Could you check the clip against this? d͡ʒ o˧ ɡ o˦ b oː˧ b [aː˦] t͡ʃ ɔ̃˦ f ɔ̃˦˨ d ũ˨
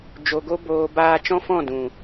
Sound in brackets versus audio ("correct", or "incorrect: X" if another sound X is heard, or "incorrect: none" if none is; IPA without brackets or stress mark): correct